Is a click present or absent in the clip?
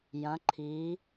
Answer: present